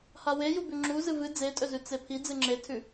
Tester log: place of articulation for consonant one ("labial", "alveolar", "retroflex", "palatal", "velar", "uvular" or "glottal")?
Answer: glottal